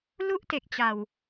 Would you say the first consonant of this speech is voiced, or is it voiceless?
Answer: voiced